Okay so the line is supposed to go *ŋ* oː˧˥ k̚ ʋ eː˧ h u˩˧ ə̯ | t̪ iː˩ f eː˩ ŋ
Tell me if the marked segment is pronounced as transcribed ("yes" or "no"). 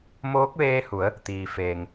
no